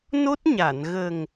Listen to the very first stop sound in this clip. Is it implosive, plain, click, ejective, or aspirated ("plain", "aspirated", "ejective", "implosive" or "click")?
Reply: plain